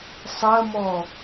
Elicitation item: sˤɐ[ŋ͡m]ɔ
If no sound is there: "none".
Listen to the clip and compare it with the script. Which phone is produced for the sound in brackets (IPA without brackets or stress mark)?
m